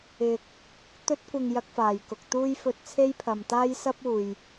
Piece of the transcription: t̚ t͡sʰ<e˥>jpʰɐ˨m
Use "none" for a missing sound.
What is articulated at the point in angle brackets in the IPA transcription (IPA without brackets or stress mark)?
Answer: e˥